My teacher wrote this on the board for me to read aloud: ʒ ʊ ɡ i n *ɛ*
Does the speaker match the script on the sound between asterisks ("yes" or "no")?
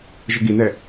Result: yes